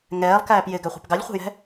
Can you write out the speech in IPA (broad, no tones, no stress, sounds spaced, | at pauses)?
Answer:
ŋ ɛː lˠ k æː p j ɪ ɡ æ χʷ ɛ̤ p ɡ ɑ lʲ χʷ ɛ̤ j ɛ̤